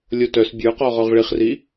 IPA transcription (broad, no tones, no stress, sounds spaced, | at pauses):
lʲ o t œ s bʲ ə˞ q ɔ ʁ ɔ ʁ ɭ i χ r i